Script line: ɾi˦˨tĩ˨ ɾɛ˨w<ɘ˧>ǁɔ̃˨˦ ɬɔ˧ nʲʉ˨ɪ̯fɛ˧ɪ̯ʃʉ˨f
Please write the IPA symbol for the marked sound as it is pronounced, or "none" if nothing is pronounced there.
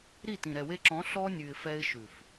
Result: e˧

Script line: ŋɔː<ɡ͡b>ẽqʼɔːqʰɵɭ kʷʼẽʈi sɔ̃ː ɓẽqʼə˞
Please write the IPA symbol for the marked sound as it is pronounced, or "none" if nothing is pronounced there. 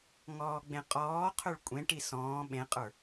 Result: ɡ͡b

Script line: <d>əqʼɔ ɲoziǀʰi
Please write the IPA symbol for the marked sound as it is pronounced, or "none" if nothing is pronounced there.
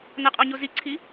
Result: n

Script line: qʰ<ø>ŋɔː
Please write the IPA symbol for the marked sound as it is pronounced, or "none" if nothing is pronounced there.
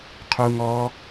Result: u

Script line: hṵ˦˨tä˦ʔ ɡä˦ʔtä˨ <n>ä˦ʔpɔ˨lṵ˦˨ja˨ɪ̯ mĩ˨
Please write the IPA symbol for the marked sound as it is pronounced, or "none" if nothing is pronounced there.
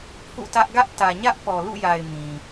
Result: ɲ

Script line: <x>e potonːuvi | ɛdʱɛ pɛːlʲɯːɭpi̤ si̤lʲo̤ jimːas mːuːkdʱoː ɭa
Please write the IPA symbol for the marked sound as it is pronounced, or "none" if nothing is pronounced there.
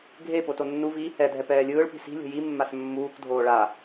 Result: ɡʱ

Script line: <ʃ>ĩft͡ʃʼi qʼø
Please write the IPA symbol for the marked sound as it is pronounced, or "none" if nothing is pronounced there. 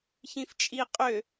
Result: ç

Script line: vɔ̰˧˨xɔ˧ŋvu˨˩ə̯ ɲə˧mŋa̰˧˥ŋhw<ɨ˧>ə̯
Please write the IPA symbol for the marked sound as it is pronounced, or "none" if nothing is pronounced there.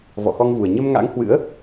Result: ɨ̰˧˥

